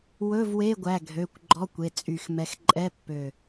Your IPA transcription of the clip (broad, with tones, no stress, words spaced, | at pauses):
wɵ˧˥˧vwe˧˥˧ɡʷæ˩˧˩ ɡʱø˩˧˩kʷ ɡ͡ǃɔ˧˥˧kʷe˩˧˩ t͡sʼy˧˩xmɛ˧˥x ǃʼɛ˧˥˧ pːø˧˩